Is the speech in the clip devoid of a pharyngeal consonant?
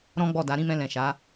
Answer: yes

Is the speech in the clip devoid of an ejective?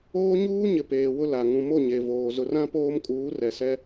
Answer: no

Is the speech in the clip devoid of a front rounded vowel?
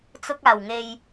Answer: yes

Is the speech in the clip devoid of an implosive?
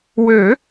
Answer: yes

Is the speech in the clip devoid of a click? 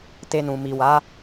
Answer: yes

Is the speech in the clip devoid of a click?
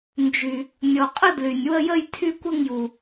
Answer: yes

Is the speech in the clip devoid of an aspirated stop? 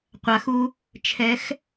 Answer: no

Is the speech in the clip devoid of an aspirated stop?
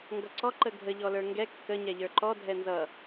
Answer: yes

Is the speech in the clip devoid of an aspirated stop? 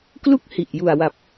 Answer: yes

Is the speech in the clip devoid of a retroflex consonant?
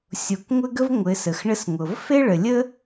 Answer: no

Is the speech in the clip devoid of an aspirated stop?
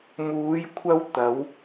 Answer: no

